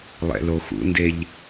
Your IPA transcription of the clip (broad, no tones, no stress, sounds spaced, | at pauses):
lˠ ɛ̰ l o x ṵ n d e ʎ